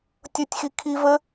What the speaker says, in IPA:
tʲ ʊ tʲ x i kʰ i v ə

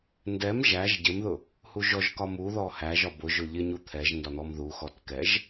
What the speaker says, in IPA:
n d ɛ m ʒ æ ʒ ɟ ɪ m ð ʊ | h u ʒ ɔ ʒ k ɒ m u ð ɔ h æ ʒ ɒ b ʊ ʒ ʊ ʎ ɪ ɲ u t̪ʰ ɛ ʒ n d ɒ n̪ ɔ m ð u x ɔ t k ɛ ʒ

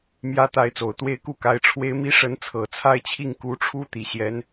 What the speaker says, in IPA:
m j ä˥ t̪ a˧˥ ɪ̯ t͡s o˨˩ ʊ̯ t̪ w e˥ ɪ̯ k u˥ k a˧˥ ɪ̯ ʈ͡ʂʰ w e˥ ɪ̯ m i˥ ʂ ə˧˥ n t͡sʰ ɤ˨˩ t͡sʰ a˥˧ ɪ̯ t͡ɕʰ i˥˩ ŋ k u˧˥ ʈ͡ʂʰ u˥ t̪ i˨˩ ɕ j ɛ˧˥ n

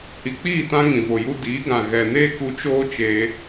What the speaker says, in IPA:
h i˨ k͡p iː˦˨ t ã˧ ŋ ĩ˨ v o˨ j u˧ d iː˨˦ ɡ ã˨ ɣ ɛ˨ n eː˦ k u˧ t͡ʃ oː˦ t͡ʃ eː˧

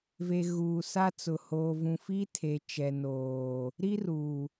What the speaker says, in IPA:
v e˨ ɣ uː˨ s a˦ t͡s ʊ˨ h oː˨ v ũ˨ f iː˦ tʰ e˨ t͡ʃ ɛ˨ n oː˨ | ɾ i˦ r uː˨

